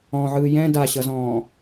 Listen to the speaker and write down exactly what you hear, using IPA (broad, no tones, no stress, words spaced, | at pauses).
ɔ̃ʕɯː jɛ̃ daɕʌzɔ̃ː